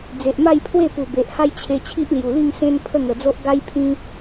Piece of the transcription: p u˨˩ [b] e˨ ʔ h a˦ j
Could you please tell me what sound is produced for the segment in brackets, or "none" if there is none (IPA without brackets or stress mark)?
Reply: b